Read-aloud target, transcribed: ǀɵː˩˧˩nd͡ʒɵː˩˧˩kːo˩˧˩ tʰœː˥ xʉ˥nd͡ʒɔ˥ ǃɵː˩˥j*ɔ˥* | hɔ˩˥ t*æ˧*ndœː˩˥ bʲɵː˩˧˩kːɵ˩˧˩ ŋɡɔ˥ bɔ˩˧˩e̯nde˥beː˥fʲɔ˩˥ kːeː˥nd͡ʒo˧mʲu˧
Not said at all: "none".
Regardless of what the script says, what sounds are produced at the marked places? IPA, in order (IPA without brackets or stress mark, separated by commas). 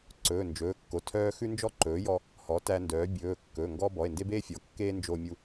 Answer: ɔ˧, æ˧